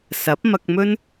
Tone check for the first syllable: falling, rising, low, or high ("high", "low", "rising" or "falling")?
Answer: rising